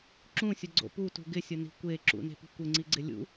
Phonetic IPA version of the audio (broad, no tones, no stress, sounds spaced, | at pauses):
ǁ ũ sʲ ʊ ɡ͡ǀ o̰ p u t ṳ ɡ ɪ sʲ ʊ n i̤ kʷ e ǁ ṵ n e̤ p i̤ kʷ ɪ ŋ͡ǀ i ɡ͡ǀ ɪ lʲ ṵ